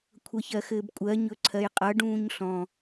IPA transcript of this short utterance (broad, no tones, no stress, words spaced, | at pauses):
kʷʰʌçɜxɘːbkʷʼɜ ɲɵǀʰɜjqʼʌ ɖũːɲɬɔ̃